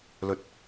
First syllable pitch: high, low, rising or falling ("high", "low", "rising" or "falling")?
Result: high